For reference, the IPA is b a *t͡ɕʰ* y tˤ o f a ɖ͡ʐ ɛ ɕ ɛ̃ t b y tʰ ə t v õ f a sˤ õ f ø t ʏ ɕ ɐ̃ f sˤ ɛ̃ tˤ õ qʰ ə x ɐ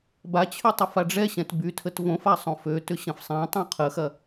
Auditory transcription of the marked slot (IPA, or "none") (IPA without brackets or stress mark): t͡ɕʰ